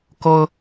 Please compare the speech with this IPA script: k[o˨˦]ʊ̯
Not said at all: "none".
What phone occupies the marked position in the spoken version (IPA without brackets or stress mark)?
o˦